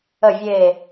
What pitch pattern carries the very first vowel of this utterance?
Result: low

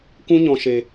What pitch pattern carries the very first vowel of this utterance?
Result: high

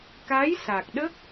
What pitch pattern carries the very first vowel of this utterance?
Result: rising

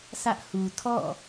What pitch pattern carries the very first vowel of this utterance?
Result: high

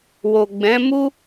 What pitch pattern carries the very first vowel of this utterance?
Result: low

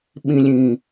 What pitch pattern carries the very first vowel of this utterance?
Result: low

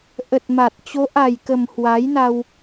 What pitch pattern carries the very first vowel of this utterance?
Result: low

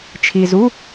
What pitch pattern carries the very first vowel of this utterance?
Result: low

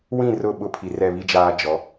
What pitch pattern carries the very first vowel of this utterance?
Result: falling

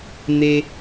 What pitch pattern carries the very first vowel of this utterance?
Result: high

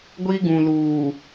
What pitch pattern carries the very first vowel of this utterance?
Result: high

